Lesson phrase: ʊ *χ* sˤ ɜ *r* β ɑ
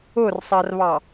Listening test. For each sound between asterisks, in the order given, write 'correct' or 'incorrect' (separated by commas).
incorrect, correct